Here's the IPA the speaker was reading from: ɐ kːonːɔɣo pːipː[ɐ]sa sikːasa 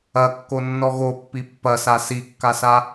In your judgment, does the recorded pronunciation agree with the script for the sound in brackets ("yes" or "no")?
yes